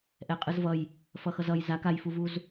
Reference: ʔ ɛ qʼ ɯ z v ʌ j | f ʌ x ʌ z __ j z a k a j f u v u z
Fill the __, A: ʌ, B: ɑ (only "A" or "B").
A